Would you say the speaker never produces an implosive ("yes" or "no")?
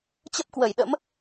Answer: no